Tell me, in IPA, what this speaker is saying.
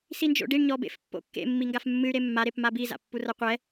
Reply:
s i n d͡ʒ o̰ ɖ i ɳ ɲ ɔ b ḛ f pː o̰ kː ḛ mː i ŋ ɡ a f mː ɨ y̯ ɾ e mː a ɾ e p m a b i z a̰ pː u r ɐ qʷ ɛ

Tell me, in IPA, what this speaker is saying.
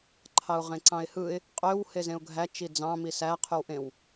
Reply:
ǃʰ ɑ ʊ̯ ʁ ẽ ǀ ɑ̃ ɪ̯ h ɯ ɪ̯ | qʼ ø w h e z ẽ ʊ̯ ɡʱ æ t͡ʃ i d͡z ɑ̃ m i s æ qʰ y w ʔ ẽ w

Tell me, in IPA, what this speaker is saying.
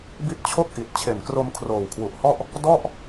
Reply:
b i˦˥ t̚ t͡ɕʰ o˥˩ k̚ ʔ i˨˩ t̚ t͡ɕʰ e˨˩ n k r o˧ m kʰ r oː˨˩ w kʰ w u˨˩ ʔ h ɔ˥˩ ʔ | d ɔ˥˩ ʔ

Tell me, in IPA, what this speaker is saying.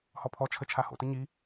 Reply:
h ɔ pʰ ɔ t͡ʃʰ ə t͡ʃʰ a h o̰ t ə ɲ i

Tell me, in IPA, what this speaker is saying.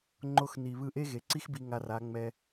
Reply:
ŋ͡ǃ o˧ x n i˨ β ɯ˧ ʔ e˦ ɣ e˨ ǀ i˦ x b i˧ ŋ a˧ r a˨˦ ŋ͡m ɛ˧

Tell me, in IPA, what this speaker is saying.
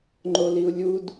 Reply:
ŋ͡ǃ o l i u̯ lʲ u d

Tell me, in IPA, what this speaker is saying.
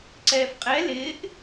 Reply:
ǀ ɛː f qʼ ɛ l ɪː ʔ

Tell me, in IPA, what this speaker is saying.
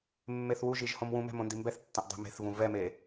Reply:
mː e θ w u ʒ i ʒ h õ m w ũ m ɛ̤ m õ n d i m b ɛ θ tː ɐ̃ ʔ dˤ e̤ m e̤ θ v ũ v ɛ m e

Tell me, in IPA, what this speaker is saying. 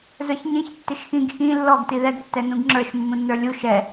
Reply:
z ə˞ ç ɲ ĩ ç tː ɪ ʃ x ĩ ɡ x ĩ lː ɔ ɡ t i ð ɛ ɡ tː ɛ n ũ ɡ ŋ͡ǁ ə˞ ʃ mː ũ nː ə˞ lʲ u ʃ ɛ

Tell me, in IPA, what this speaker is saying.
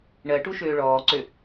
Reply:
ɳ ɜ ʈ u ʃ øː ɭ ɔː ǀ ø

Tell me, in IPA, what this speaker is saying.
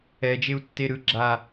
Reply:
ɛ d͡ʒ e u̯ tː e ɾ ɯ ɡ͡ǁ a

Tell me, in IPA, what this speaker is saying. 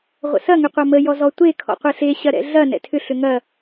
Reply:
ʁʷ ə̰ s ɐ ŋ ʏ qʷ ɐ m ə j ɔ z ɔ tʷ e kʰ ɔ̰ qʷ ɛ ɬ e ɕ ɐ ɾ ɛ̰ ɮ ɐ n ɛ̰ tʰ ʏ ɬ ʏ ŋ ɐ

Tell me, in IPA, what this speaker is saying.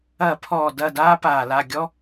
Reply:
ɐ˧˩˧ pʰ ɔː˨˩ d ɐ˥˨ d aː˥ p aː˨˩ l a˥˨ ɡʲ ɔ˥

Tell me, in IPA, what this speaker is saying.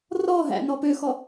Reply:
r ɔ ɦ æ̰ n ɔ p ø x ɔ

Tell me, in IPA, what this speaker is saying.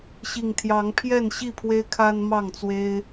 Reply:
ɕ i˨˩ ŋ t̪ʰ j ɑ˨˦ ŋ pʰ j ɛ˥˨ n ɕ i˥˨ pʰ w e˦ ɪ̯ kʰ a˦ n m ɑ˥˨ ŋ t͡s w e˦ ɪ̯

